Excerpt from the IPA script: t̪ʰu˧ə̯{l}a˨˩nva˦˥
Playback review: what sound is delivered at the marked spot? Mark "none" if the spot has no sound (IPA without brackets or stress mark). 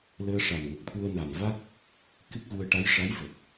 n